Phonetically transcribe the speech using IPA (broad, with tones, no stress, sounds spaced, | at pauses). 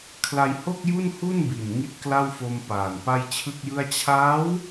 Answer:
kʰ l a˧ j h o˥˩ k̚ j u˥˩ n h u˥˩ n b i˨˩ n ŋ i˦˥ t̚ k l a˥˩ w f o˧ m p aː˨˩ n p a˥˩ j t͡ɕʰ ɯ˥˩ k̚ j ɯ˥˩ a̯ t͡ɕʰ aː˦˥ w